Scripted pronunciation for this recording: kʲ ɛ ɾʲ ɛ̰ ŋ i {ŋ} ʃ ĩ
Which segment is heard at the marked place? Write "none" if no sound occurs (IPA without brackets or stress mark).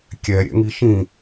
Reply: none